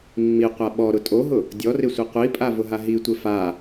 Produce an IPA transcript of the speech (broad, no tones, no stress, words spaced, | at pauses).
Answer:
mːiqʷa ɓɔɾʊ tʼoɦʊ | dʲɔrɪsʷe qʷipʼavʊɦa ɦitʷɪ fa